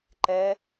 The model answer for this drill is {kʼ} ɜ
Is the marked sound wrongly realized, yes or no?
yes